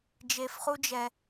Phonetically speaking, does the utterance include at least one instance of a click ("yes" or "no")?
no